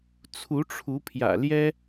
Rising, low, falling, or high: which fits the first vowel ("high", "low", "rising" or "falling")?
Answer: rising